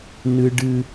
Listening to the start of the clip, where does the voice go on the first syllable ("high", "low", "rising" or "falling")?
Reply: high